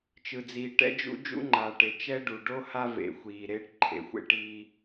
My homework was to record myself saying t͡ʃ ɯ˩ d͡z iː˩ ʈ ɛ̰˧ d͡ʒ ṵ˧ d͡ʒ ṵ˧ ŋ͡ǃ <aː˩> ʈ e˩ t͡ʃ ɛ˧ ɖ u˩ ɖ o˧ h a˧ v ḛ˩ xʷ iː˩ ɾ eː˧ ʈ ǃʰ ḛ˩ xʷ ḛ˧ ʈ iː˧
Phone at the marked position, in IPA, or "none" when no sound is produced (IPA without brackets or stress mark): aː˩